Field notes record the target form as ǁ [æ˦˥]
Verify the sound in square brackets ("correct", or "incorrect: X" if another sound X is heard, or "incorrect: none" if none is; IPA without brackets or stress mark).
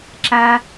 incorrect: æ˧